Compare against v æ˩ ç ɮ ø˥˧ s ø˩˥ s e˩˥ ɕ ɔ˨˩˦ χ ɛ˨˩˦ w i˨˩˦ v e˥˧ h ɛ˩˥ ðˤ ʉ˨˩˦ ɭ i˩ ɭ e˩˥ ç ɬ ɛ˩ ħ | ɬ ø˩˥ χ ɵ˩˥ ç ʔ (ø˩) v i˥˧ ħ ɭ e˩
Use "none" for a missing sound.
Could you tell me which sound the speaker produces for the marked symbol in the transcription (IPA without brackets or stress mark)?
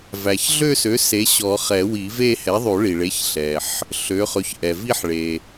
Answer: ɛ˩